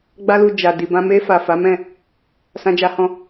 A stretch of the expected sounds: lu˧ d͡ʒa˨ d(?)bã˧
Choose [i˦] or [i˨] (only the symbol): i˨